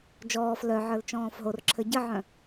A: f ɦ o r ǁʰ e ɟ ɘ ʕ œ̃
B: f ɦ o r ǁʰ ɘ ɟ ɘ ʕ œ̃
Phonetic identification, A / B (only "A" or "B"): B